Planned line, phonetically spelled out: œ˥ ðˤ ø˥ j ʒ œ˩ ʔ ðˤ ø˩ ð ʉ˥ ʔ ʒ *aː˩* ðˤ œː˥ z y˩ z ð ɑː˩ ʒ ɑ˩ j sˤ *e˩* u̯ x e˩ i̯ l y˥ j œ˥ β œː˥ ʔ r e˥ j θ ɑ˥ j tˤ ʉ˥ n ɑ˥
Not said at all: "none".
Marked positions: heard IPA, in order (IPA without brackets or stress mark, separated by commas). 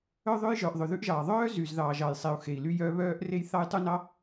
ɑː˩, e˩